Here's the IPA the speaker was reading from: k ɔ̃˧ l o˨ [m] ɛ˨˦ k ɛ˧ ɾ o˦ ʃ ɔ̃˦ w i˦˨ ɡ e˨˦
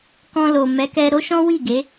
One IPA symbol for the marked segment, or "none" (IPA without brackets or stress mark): m